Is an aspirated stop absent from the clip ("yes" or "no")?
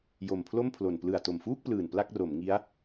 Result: no